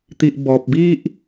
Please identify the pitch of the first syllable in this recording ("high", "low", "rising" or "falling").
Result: low